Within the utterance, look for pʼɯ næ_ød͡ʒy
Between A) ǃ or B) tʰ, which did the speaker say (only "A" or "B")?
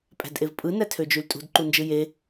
B